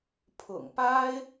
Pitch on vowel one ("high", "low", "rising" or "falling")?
low